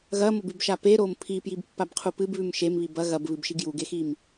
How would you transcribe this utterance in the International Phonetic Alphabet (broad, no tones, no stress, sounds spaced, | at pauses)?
ɣ ɐ m o b ʉ b ʃ a p e ɾ o m pʰ i p j i b pː a b qʰ u p ɨ b β ʉ m ʃ e m β i b ɐ ɣ ɐ b β ɨ b ʃ i ɡ j u ɡ e x i m